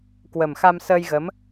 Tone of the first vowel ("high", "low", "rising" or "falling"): low